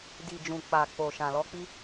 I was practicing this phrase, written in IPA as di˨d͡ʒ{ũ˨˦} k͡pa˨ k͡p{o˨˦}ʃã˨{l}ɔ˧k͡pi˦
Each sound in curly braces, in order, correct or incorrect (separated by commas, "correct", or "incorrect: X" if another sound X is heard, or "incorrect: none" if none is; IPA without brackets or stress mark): incorrect: ũ˨, incorrect: o˨, correct